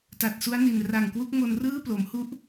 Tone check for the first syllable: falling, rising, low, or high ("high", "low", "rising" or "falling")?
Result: low